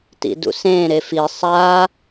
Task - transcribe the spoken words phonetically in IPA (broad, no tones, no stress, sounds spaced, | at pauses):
t ḭ d ṵ s ẽː ɾ e f i sˤ aː